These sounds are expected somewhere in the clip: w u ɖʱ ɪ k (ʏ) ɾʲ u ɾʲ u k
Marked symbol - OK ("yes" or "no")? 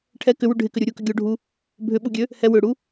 yes